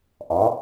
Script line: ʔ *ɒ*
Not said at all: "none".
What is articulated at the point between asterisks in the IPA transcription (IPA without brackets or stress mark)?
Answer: ɒ